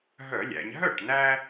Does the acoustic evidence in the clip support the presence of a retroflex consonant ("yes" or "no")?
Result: yes